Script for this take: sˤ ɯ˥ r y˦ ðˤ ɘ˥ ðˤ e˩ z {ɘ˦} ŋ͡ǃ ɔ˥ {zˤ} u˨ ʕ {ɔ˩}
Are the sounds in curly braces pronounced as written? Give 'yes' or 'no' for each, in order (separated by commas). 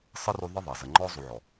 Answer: no, yes, yes